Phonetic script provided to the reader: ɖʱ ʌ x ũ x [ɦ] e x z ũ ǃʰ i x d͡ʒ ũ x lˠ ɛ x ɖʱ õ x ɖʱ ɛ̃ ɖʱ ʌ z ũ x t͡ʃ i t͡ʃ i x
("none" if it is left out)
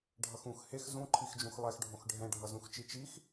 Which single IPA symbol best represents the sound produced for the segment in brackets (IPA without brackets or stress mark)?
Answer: h